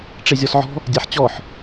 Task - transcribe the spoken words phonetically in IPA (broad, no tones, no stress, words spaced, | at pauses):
ʈ͡ʂezʲɔsʕɔ̤ | dʲaħt͡ɕɔħ